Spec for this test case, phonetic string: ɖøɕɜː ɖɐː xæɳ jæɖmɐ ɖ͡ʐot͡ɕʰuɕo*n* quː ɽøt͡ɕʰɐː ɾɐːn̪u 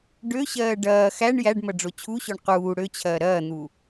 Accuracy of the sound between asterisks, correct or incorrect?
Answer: incorrect